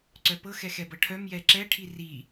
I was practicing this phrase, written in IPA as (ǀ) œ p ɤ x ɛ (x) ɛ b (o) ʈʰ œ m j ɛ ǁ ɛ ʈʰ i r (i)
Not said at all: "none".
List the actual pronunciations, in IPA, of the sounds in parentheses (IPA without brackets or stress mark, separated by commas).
ǀ, x, ɤ, i